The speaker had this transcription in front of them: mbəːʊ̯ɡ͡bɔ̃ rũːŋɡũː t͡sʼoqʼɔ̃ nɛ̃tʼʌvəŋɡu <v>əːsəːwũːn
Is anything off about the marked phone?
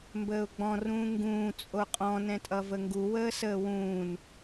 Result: yes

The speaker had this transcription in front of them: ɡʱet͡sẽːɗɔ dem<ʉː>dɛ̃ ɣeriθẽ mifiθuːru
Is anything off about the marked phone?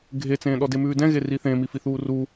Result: no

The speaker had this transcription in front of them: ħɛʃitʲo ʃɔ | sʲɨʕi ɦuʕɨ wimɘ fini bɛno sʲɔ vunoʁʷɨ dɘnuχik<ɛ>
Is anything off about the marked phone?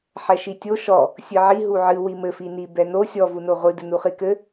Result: yes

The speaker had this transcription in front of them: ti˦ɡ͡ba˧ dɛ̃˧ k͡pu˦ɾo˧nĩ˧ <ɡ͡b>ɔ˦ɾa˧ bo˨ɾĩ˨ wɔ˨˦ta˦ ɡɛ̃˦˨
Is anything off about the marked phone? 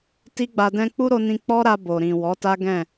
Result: yes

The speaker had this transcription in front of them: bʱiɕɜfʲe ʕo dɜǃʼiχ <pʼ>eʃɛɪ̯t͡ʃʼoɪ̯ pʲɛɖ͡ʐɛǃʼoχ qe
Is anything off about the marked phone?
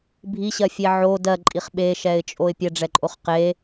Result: yes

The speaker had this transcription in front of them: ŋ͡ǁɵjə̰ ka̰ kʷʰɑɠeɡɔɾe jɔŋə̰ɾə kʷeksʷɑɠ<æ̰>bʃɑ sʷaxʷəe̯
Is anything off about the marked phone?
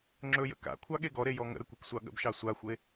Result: yes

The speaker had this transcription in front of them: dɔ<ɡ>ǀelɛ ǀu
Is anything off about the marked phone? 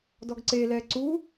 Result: no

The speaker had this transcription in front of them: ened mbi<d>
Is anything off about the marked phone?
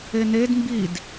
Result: no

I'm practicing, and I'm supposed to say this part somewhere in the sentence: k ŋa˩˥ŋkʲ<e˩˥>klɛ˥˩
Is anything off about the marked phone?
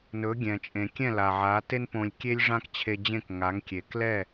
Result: yes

